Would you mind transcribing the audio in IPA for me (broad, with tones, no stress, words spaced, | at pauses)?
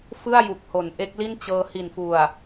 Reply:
fɯ˥˩a̯ju˨˩k̚ho˩˦n ʔe˦˥k̚li˥˩n t͡ɕɤː˧hi˨˩nfu˨˩a̯